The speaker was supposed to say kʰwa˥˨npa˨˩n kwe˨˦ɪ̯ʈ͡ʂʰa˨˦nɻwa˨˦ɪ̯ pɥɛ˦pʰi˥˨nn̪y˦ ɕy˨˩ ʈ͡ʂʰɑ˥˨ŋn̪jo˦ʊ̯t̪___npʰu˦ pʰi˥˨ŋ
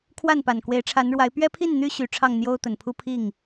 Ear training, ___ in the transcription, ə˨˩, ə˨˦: ə˨˩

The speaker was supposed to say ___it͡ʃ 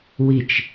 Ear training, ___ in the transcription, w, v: w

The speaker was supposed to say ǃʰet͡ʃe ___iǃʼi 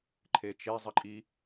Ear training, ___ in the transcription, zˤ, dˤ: zˤ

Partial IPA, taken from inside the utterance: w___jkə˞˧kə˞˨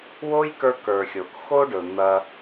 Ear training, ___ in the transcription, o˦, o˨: o˦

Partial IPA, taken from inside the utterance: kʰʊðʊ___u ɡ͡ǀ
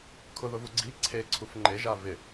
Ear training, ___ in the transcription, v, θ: v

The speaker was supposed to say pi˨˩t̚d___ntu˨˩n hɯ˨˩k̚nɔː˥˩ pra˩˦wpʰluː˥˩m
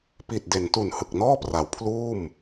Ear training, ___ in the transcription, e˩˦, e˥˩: e˩˦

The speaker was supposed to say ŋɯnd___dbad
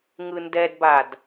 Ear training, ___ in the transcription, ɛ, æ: ɛ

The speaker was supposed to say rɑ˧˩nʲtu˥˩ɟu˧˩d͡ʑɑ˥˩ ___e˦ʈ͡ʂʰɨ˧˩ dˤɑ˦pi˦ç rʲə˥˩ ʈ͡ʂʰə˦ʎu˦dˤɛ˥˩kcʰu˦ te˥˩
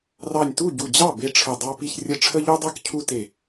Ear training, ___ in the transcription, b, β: b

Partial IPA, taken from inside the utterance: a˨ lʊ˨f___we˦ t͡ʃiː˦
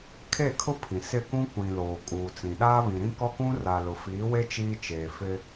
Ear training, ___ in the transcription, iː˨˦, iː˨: iː˨˦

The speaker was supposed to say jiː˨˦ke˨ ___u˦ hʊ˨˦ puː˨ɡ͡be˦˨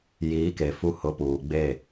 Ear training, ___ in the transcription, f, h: f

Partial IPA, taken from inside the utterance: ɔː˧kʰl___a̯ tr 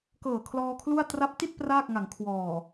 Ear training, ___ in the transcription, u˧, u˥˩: u˥˩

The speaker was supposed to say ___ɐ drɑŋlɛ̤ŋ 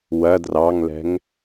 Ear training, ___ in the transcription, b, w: w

